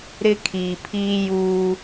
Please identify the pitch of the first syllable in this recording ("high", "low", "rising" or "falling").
high